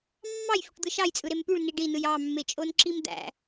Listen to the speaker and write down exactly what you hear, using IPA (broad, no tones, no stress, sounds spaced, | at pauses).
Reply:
mː ɑ j f y ʈ d̪ ɯ ʃ ɑ j t͡sʼ ɯ ɾ e m p y ɭ n i ɖ i n ɯ j ɑ mː e t͡ʃʼ o n ǁ i m d̪ æ̰